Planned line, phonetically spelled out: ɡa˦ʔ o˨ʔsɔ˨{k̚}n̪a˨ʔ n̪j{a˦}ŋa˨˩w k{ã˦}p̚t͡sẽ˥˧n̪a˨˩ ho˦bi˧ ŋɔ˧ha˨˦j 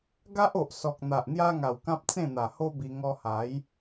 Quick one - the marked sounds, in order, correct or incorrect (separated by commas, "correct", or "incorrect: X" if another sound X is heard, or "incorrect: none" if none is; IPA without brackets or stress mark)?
correct, correct, correct